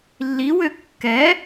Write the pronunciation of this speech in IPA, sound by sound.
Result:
lː i w ø kː ɛ

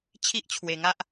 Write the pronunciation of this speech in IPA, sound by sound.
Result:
t͡ɕʰ i˦ ʔ t͡ɕʰ w e˧ ŋ a˦ ʔ

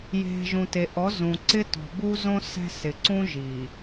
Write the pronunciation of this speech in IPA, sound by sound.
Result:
j e̤˨ ʒ ũ˨ t e˨ ʔ ɔ˨˦ z ũ˨ ǀ ɪ˦ t ɔ̤˨ b u˦ z õ˦ s ɛ̤˦ s ɪ˨ ǀ ũ˦ ʒ i˨

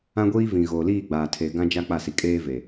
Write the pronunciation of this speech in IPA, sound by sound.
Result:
ã˦ ɡʷ iː˦ v ĩ˨ ɣ oː˨ l iː˦˨ ɡ͡b aː˨ tʰ e˨ ɡ ã˦ d͡ʒ a˦ k͡p a˦˨ s i˨ kʼ eː˦ v e˨

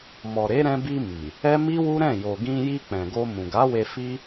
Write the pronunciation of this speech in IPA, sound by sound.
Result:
m ɔ˨ ɾ e˨˦ ɾ ɛ̃˧ b i˧ m i˨ | ɛ˦ m i˦ w u˦ ɾ ɛ̃˦˨ j o˨ ɡ ĩ˧ j i˧ k͡p ɛ̃˨ ɡ o˧ m ũ˨ ɡ a˨˦ w e˧ f i˦

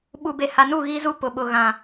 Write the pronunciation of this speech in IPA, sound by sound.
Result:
ɓ u˨ b e˨ h a˨ n u˦˨ ɣ i˦ z u˦ p ʊ˨ ɓ ʊ˨ ɣ ã˨

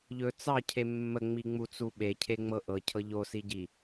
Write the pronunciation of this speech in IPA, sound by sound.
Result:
ʎ ɵ t͡s ɑ cʰ e mː ə ŋ͡m i ŋ͡m u t͡s u ɓ e cʰ e ŋ͡m ɤ ʔ ɤ cʰ ɤ ʎ o s i ɟ i

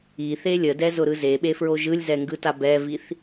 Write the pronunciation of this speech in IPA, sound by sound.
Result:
i θ e lʲ ə d ɛ z ʊ ɾ ɯ z e ɓ e f ɹ o ʒ ɯ lʲ z ɛ ŋ ɡ ɯ t a b ɛ v i θ

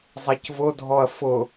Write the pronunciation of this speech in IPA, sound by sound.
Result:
zˤ ɛ c v ʊ dʱ ɔ ɐ̯ f ʊ

